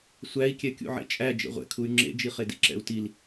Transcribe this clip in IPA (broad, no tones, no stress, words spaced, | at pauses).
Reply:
sʷæi̯kʲɛkʲṵ ʕḛt͡ʃʼæ d͡ʒḛʁʷɛ̰kʰuy̯ ŋ͡ǁḛd͡ʒiχedḭ ǁɛ̰u̯til